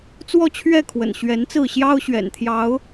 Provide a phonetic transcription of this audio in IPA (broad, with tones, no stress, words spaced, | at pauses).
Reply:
t͡swɔ˥˨t͡ɕʰɥɛ˥˨kʰwə̰˨˩n ɕɥɛ˨˦nt͡sɹ̩˥˨ ɕjɑ˦ʊ̯ɕɥɛ̰˨˩nt̪ʰjɑ˨˦ʊ̯